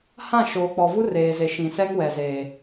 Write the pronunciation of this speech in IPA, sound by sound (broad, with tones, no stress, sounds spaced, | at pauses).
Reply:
h ã˦˨ ʃ oː˨ k͡p ɔ˨ v u˦ r eː˨ z e˨ ʃ ĩ˨ s ɛ˦ ŋ w ɛ˨ z eː˨